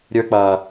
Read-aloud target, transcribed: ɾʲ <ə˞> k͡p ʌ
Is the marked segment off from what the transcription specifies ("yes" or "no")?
no